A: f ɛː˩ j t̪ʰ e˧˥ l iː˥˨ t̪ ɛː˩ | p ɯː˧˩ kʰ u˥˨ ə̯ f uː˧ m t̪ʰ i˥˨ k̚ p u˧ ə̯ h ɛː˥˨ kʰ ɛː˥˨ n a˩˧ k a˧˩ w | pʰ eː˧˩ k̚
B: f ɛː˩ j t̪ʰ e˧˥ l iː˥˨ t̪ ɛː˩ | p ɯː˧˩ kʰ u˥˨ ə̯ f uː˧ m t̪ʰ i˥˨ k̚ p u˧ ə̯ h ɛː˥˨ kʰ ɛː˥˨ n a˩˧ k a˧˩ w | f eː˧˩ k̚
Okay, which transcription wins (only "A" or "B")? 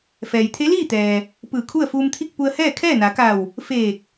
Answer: B